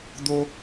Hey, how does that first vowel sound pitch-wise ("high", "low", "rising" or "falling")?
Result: high